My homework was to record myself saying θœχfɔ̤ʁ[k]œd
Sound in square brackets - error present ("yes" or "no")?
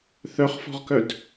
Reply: no